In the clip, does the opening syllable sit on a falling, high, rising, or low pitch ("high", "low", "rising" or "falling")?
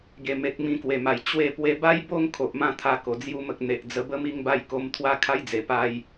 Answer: low